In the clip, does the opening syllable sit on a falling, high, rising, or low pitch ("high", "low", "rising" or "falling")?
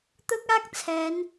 high